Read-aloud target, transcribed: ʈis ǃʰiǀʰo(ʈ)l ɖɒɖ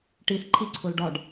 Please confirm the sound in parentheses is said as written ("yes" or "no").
no